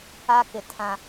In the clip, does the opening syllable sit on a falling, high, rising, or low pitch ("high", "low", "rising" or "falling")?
high